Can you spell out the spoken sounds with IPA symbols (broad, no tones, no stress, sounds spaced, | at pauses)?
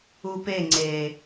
u p e ŋ͡ǀ e